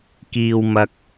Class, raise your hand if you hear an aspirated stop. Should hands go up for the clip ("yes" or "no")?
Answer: no